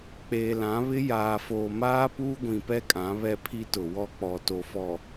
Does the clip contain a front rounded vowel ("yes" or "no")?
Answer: no